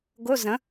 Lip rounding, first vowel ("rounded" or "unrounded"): rounded